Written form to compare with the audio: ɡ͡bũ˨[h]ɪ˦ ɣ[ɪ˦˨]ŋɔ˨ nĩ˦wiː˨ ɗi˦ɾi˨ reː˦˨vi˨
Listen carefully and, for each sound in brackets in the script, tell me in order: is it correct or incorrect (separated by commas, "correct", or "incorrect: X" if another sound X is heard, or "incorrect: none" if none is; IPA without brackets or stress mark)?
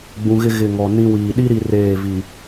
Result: incorrect: ɣ, correct